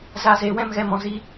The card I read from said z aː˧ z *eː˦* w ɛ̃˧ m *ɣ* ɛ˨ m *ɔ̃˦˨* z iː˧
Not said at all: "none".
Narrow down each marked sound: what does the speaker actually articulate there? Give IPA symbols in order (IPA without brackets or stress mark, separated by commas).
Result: eː˨, ɣ, ɔ̃˨